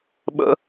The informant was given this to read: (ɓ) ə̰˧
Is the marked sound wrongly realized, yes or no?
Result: no